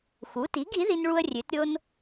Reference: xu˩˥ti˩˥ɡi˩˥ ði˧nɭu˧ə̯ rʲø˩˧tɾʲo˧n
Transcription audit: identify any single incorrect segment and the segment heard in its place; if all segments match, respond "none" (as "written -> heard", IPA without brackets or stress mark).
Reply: none